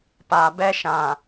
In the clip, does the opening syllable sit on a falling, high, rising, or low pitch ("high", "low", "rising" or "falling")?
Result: low